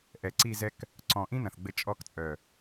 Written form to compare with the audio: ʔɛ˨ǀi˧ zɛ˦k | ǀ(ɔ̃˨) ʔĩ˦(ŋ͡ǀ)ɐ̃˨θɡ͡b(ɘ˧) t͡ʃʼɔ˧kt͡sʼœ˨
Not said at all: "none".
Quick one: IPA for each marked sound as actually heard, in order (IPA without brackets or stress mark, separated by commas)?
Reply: ɔ̃˨, n, ɘ˧